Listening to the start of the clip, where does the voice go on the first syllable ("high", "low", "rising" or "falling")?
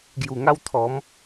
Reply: low